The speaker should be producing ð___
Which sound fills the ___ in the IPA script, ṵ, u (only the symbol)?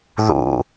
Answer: ṵ